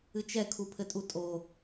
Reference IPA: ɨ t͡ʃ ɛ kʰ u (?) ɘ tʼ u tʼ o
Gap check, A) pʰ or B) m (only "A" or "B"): A